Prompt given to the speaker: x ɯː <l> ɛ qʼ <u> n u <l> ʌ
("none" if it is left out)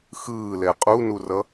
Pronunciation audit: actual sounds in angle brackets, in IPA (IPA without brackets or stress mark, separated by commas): l, u, r